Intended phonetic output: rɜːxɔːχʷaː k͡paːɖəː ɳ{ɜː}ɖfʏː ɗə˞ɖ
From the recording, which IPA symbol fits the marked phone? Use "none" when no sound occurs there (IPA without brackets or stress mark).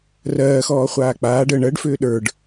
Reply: ɜ